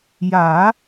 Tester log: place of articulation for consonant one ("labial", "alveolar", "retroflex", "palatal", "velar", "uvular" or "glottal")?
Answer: palatal